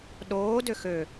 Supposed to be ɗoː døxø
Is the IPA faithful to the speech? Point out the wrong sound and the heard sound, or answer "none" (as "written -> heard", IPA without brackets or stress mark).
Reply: none